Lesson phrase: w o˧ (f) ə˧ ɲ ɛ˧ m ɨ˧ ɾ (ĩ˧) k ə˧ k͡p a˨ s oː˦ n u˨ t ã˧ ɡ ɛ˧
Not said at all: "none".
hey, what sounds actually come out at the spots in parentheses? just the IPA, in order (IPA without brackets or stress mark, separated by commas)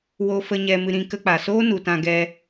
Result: f, ĩ˧